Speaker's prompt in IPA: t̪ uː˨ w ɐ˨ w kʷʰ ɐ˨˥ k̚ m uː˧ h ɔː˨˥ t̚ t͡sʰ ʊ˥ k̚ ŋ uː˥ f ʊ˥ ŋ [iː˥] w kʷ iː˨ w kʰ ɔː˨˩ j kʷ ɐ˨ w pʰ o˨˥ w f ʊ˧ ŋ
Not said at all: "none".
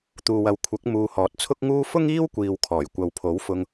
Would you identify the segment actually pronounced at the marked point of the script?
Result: iː˥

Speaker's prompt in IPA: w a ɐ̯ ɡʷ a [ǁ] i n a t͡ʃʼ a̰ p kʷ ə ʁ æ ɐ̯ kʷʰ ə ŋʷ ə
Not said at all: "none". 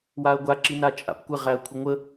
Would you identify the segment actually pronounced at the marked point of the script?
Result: ǁ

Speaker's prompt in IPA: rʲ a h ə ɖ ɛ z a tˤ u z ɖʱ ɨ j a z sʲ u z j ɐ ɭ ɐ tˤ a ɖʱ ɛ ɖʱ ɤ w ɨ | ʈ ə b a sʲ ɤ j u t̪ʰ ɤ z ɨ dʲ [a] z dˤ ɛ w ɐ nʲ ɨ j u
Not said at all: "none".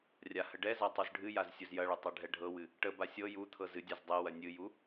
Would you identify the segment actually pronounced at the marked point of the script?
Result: a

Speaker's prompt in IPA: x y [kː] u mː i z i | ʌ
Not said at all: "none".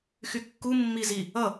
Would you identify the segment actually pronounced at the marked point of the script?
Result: kː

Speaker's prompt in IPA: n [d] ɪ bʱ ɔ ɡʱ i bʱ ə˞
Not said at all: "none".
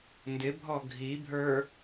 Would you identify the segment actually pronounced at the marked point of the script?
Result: d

